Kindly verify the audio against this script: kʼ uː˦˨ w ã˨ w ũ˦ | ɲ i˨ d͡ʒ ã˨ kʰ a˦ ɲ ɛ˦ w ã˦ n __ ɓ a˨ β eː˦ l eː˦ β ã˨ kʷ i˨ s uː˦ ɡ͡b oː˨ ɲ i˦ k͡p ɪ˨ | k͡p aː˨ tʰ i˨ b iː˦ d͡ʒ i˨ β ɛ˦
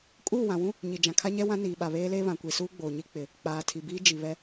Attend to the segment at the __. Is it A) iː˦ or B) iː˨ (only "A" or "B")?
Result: B